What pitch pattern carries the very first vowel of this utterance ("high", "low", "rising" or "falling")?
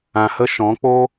low